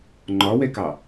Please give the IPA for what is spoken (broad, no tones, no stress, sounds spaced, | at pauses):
ŋ͡ǃ ɒ w ɛ k ɑ